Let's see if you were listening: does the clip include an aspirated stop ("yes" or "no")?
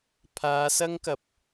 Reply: yes